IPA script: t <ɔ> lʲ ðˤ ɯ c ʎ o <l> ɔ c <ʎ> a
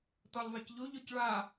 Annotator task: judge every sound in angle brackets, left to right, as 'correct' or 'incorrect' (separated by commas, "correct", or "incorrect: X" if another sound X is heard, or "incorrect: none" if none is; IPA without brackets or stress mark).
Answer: correct, incorrect: ʎ, incorrect: ɭ